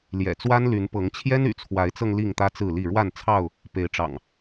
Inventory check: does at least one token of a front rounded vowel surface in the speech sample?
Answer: yes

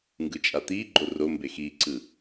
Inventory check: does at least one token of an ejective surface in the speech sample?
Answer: yes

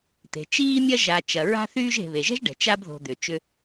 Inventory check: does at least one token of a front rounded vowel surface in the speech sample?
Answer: yes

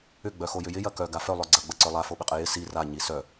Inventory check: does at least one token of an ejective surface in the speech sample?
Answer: yes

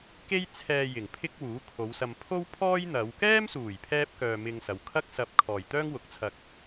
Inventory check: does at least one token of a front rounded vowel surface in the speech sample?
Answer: yes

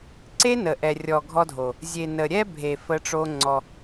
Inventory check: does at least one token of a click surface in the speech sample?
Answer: yes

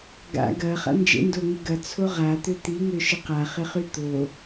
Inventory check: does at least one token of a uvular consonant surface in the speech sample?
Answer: yes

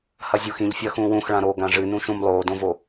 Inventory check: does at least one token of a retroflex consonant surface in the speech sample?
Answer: yes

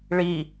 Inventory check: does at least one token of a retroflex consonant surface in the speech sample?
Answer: yes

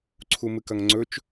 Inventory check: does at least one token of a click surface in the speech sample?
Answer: yes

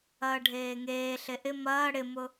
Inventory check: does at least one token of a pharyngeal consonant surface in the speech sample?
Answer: no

